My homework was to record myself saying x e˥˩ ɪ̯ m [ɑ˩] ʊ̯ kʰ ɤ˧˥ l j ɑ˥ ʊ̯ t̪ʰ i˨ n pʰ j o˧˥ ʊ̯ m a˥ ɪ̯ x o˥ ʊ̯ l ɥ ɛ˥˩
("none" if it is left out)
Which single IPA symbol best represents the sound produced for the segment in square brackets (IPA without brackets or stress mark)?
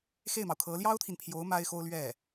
ɑ˩